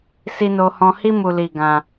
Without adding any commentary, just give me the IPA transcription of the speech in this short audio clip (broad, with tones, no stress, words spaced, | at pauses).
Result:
si˦no˦hɔ̃˦ hi˦mu˧li˧ ɡã˧